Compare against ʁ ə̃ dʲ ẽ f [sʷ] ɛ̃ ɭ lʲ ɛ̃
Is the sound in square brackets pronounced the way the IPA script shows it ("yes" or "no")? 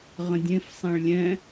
no